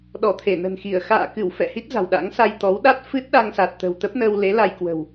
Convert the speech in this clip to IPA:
ɗ ɔ˧˩ t̪ʰ e˧˩ n ə̤˨˩ n x i˧˩ ə̯ x a̰ː˧˨ k ɨ˧˩ w f ɛ̰˧˨ h i˦˥ t̚ z a̤˨˩ w ɗ a̰˧˥ ŋ s a˧ j t̪ ɔ˨˦ w ɗ a˦˥ t̚ f ɨ˦˥ t̚ ɗ a˧ ŋ s a˨˩ t̚ t̪ ə̤˨˩ w t̪ ə˦˥ p̚ n əː˧ w l e˨˦ l a˧ j k w ə̤˨˩ w

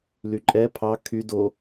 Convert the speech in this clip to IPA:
l y ǃʼ ɛ pʰ ɑ kʰ y d o

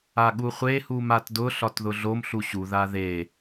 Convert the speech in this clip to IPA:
a ɠ u χʷ e h u m a t d ʊ ɬ ɒ t ð ʊ ɮ o m ɬ u ɕ u ð a ð e

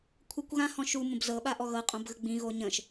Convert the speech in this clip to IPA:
kʷʰ ɐ kʷ ɣ ã h ɔ̃ ʃ u m ə̃ b z ɤ ɓ a ʔ ɔ ɣ ɤ qʼ õ b ɣ ə ɡ͡b ĩ ɣ o ɲ ə̃ ʃ

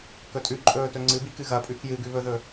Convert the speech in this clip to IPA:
k ɵ tʼ ʉ ǃʼ ɵː t ɵ ŋ͡ǀ ɨ b i k ɨ ɣ ɐ pʼ ʉ k j ɨ ɡ ʉ β ɵ ð ɵ

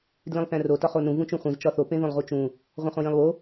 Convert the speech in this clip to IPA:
d l ĩ lˠ θ æ̃ r o t ɒ χ o n ũ v ũ t͡ʃ ũ χʷ ĩ z t͡ʃ ɒ θ o p ẽ ð õ lˠ ʁ u t͡ʃ ũ | ʁʷ æ̃ χ õ j ĩ lˠ w o

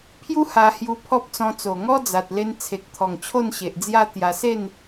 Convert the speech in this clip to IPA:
pʰ j u˦ h a˧ h j u˧ pʰ ɔ˦ p̚ t͡s ɔ̃˧ t͡s o˨˩ ŋ ɔ˦ d͡z a˨ t̚ l e˧ n t͡sʰ e˨ k̚ t̪ʰ ɔ˨˩ ŋ t͡ɕʰ o˥˧ n ɕ e˨ ʔ d͡z j a˦ t̪ j a˧ s e˥˧ n

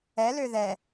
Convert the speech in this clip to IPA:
ɛ l ø ð ɛ

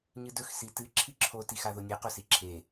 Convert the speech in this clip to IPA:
ɲ ɨ d ɵ x s i t ɨ ǁʰ i ǁʰ o t i x a ð o nʲ e q o s i ǁʰ e

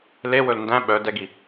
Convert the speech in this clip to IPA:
l e w ɵ l n d æ̃ ɓ œ d ɛ ɡ i

